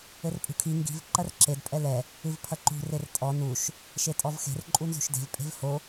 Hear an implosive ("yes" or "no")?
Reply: no